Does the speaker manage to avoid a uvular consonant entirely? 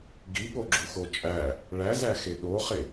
no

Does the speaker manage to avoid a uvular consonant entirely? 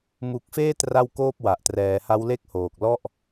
yes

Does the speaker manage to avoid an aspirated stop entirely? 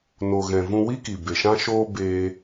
yes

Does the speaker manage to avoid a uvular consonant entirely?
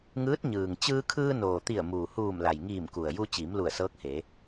yes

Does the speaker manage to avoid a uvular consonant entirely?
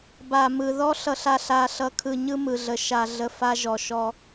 yes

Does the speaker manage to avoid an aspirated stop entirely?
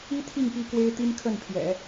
no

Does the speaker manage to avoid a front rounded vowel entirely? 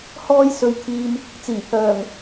no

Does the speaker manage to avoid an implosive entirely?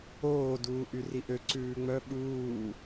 no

